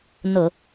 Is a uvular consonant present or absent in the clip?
absent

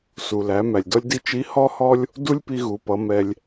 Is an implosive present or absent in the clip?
absent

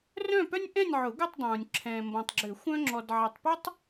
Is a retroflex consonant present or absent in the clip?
absent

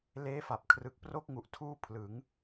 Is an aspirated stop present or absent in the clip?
present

